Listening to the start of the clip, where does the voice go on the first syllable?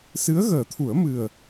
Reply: rising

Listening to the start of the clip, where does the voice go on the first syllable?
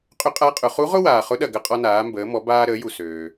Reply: rising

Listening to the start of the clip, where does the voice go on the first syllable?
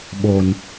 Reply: low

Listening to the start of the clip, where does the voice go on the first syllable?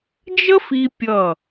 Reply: high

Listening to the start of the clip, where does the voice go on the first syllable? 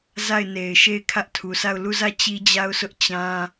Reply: falling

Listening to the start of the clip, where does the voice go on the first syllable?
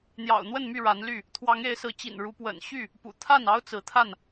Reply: low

